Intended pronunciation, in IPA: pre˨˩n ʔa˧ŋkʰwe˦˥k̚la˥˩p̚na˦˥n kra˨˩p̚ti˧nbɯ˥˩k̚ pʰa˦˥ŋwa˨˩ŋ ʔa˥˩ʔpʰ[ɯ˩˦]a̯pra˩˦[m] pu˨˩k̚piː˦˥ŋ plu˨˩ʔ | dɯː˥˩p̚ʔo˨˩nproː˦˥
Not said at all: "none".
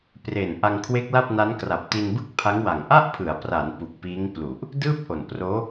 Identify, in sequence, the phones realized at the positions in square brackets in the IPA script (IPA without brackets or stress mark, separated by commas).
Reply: ɯ˩˦, n